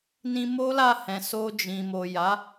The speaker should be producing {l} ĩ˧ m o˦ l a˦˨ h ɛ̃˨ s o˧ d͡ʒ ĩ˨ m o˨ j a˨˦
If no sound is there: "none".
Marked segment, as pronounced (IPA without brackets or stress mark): n